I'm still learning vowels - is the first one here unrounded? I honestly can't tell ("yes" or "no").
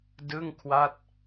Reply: yes